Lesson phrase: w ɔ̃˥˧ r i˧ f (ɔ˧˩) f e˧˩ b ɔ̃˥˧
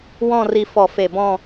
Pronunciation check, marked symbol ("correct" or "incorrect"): correct